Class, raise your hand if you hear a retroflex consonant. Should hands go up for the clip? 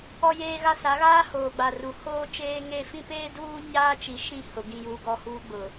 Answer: no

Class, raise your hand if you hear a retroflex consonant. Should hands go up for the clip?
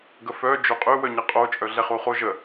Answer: no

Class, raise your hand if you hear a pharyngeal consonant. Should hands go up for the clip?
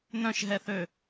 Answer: no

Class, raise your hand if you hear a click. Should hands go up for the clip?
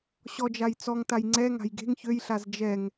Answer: yes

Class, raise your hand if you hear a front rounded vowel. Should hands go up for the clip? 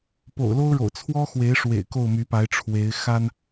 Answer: yes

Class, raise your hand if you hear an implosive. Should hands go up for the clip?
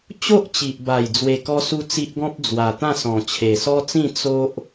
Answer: no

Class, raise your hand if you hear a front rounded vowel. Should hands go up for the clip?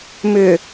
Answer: yes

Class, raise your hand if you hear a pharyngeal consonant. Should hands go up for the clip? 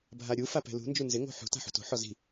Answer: yes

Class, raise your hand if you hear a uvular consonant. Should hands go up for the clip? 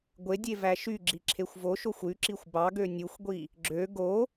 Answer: no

